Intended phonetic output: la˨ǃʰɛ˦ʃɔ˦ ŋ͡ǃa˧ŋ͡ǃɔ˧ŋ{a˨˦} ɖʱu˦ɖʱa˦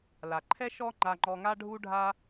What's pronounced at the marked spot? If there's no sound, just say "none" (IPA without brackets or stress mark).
a˦